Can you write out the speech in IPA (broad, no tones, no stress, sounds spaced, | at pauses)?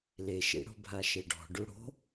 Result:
l e ʃ ḭ ɽ o̤ bʱ a ʃ e ɖ ɔ̤ ɖ u ɽ o̤